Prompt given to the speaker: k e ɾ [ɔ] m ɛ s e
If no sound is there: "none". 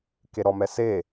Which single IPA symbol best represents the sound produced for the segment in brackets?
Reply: ɔ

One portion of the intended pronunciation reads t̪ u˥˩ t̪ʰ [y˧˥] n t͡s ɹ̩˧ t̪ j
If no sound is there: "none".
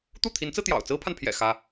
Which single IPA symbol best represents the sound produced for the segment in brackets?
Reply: i˧˥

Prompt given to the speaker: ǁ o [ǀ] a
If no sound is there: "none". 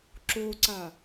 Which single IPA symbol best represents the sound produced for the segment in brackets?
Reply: ǀ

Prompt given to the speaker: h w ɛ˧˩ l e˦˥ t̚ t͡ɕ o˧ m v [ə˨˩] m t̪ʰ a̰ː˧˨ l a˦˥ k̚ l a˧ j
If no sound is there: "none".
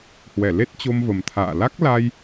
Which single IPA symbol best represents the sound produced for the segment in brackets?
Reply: ə˨˩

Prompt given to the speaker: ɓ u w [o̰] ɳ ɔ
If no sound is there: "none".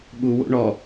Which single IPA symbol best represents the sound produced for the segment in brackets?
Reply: o̰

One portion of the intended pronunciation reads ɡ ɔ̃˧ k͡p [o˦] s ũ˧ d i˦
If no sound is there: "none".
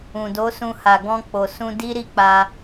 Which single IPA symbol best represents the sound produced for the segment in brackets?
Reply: o˨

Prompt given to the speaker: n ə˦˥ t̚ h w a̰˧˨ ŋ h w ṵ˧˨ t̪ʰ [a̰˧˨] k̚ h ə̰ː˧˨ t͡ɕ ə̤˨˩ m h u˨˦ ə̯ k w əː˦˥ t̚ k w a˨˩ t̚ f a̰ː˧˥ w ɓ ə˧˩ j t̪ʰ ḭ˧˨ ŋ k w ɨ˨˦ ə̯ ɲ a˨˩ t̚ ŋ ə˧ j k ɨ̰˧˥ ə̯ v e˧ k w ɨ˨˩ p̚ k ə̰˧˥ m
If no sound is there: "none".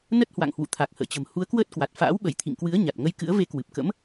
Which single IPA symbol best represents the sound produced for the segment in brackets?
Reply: a˨˩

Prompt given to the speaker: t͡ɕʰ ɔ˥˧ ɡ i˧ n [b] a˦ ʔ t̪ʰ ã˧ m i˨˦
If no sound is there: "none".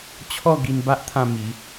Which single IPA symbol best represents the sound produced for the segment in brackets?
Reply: b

